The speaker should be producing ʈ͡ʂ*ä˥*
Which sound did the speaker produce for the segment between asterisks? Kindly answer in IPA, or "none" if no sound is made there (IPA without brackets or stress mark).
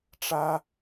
ä˥